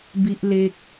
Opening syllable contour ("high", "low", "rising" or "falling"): high